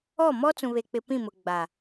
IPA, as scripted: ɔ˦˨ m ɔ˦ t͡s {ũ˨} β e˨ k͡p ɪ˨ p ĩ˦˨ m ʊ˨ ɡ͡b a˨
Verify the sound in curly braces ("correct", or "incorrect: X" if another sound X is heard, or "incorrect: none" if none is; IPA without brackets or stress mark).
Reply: correct